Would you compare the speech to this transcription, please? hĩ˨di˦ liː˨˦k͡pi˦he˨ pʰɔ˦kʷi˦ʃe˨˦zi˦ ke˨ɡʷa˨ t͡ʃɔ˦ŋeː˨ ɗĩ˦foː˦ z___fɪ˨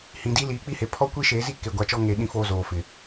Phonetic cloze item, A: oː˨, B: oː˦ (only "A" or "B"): A